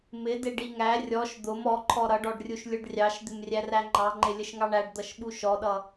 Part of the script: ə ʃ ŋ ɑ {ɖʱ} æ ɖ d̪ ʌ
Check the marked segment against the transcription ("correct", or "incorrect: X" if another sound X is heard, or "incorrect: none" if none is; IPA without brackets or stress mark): incorrect: ɳ